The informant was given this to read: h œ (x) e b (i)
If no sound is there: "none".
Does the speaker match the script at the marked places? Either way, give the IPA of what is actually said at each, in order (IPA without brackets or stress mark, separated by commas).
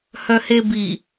h, i